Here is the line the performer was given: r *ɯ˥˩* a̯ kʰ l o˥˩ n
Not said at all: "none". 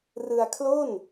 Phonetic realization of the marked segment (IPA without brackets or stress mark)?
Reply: ɯ˧